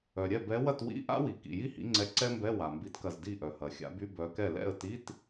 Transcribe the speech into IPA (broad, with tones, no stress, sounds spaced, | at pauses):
œ˩ ɾʲ ɛ˥˩ b ɛ˨˦ w ɐ˥˩ t w ḭ˧˥˧ ʔ a̰˥ w i˩ k ḭ˩ j i˥ h ḭ˨˦ ŋ͡ǀ ɛ˨˦ ǀ ɛ˥ m b ɛ˧˥˧ w a˩ m b i˨˦ t k ɐ˧˩ z d i˥˩ ʔ œ˩ h ɐ˩ xʲ a̰˨˦ b y˧˥˧ b œ˨˦ k ɛ˥˩ l ɛ̰˥˩ ə̯ t i˧˥˧ t